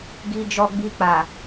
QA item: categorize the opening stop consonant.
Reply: plain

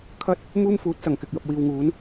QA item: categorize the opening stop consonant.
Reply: aspirated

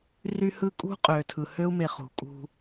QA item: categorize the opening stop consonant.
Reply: ejective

